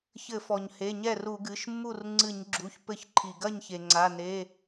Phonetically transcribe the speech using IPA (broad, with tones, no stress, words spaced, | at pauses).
çɘ˧˩˧fɔ˩ɲhe˩˧˩ ɲɛ˥˩ru˧˩˧ɡɨ˩˧˩ʃmːu˥˩r ŋ͡ǀɨ˧˩˧ɲɡ͡ǁu˩˧˩ç pɘ˧˩˧ç ǃʰi˩ɡɐ˥˩ɲçe˩ŋ͡ǀa˩˧˩ ne˩˧˩